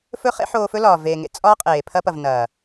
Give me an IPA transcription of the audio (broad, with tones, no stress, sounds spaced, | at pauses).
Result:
f ɵ˦ χ ḛ˦ ħ oː˧ f ɵ˦ l ɒː˨ v eː˨ ŋ ḛ˨ t͡sʼ ɒː˦ qʼ eː˨ pʰ ɐ˧ p ɐ˨ v n ɐː˨